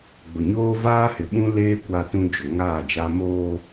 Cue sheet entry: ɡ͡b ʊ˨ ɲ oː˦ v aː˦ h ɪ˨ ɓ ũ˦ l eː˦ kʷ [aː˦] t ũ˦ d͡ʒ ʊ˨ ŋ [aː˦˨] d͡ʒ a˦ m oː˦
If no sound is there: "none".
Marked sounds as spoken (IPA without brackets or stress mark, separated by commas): a˦, aː˦˨